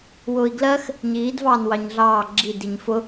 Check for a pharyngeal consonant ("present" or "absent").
absent